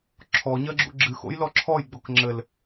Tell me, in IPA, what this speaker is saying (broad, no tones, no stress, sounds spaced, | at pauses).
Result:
ǁʰ ɔ ɲ ɐ ɡ͡ǁ ṵ ɡ͡ǁ ɨ x o̰ j l ɔ ǁʰ ɔ j ɡ͡b o k ŋ͡ǁ ɘ l